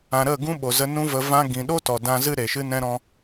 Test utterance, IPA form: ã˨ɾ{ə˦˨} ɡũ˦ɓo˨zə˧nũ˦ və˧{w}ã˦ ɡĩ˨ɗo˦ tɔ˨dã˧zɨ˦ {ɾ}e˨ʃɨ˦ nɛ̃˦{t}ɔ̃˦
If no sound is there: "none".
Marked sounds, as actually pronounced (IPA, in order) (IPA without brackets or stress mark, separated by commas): ə˦˨, v, ɾ, ɾ